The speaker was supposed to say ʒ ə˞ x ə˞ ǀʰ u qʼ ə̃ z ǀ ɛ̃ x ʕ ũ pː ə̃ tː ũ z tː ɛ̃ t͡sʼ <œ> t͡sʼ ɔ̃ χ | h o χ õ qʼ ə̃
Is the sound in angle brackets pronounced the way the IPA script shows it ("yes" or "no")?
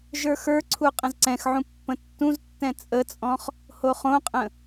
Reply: no